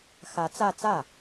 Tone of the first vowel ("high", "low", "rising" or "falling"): rising